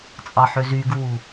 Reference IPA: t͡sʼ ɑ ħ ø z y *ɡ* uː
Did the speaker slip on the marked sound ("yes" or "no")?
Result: no